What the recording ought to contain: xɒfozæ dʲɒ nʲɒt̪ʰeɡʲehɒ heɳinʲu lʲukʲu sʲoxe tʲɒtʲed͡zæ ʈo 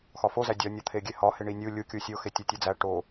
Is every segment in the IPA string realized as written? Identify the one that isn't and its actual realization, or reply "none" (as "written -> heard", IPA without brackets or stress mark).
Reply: none